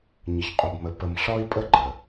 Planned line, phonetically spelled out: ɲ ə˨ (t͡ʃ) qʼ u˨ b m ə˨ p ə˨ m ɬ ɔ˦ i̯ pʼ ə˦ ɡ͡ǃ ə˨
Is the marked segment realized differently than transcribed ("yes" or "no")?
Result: yes